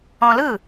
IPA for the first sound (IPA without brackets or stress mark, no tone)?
ɔ̃